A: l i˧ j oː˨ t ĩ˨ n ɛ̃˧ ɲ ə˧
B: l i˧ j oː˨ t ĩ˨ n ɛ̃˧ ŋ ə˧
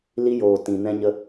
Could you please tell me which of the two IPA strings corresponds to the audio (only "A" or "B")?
A